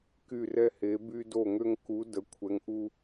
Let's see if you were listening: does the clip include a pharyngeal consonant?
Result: no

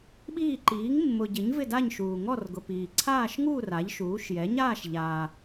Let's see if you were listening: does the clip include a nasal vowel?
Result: no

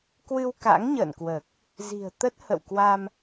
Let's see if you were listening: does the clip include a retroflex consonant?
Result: no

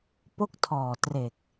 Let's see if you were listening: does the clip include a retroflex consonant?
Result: no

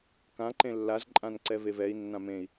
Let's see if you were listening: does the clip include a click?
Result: yes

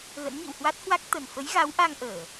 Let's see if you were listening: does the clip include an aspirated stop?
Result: no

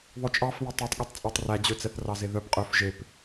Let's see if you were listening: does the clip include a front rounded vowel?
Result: yes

